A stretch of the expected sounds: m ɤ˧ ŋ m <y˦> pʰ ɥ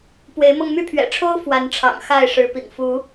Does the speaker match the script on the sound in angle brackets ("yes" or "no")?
yes